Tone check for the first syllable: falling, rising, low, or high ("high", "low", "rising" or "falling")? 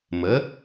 rising